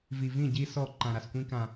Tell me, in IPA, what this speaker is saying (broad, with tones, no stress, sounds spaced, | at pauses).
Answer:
v i˨ v ĩ˦˨ ɟ i˦ s ɔ˦˨ ǃ ã˨ ɾ a˨ s kʷ ĩ˦ k ã˦